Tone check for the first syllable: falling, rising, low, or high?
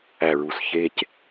low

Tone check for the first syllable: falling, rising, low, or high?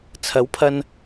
rising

